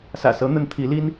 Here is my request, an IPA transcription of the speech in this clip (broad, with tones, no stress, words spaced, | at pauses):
sä̰˨˩sɤ˧˥n̪ə˧˥n t̪ʰi˧˥li˥n